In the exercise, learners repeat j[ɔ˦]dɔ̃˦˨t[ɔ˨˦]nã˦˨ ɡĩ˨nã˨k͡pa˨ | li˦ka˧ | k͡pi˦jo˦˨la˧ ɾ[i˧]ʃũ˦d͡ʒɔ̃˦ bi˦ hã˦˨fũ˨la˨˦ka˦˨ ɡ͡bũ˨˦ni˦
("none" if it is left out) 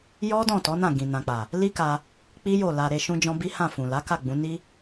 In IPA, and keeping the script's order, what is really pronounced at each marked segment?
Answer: ɔ˦, ɔ˨˦, e˧

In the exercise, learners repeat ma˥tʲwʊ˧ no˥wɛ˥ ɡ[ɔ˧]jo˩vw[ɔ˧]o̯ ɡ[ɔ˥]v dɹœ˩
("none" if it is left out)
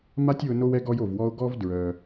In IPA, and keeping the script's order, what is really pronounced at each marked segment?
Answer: ɔ˧, ɔ˧, ɔ˥

